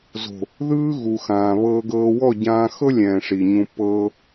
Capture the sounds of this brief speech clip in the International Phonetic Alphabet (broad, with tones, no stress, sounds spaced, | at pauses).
z o̤˨ | ð ɯː˧ ɣ u˨ x ãː˨ β ɤː˧ ɡ ɤː˧ w ɔ˦˨ ɟ ãː˧ x ɤ˦ lʲ ɛ̃ː˨ ʂ i˨ ɲ ũ˧ p ɤː˧